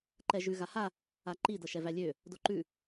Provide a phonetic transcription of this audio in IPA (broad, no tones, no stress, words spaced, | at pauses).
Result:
ǃɛʒʉ ɣaha | aǃi dɤʃɛvælʲø | doǃʉ